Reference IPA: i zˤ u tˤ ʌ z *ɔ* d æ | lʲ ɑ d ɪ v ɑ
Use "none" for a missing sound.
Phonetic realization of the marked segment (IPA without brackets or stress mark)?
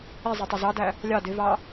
ɑ